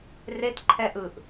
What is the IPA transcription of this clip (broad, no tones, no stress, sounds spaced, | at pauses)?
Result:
r e t ǃʰ ɛ ʔ ɯ ʔ